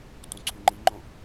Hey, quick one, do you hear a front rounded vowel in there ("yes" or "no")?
yes